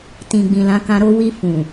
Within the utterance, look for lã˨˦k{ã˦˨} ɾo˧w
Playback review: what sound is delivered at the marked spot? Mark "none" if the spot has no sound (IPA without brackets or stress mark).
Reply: ã˧